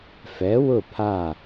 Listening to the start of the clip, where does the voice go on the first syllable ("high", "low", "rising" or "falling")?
rising